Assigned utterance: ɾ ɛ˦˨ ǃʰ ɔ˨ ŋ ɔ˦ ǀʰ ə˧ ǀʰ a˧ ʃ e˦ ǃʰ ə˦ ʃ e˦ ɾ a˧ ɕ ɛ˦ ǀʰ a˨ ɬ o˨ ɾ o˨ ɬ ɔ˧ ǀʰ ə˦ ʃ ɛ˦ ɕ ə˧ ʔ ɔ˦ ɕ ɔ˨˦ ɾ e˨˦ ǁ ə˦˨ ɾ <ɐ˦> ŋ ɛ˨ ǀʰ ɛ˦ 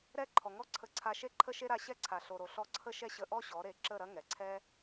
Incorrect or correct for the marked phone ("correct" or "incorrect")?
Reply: correct